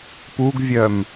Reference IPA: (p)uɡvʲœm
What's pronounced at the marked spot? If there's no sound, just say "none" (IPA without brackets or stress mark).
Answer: p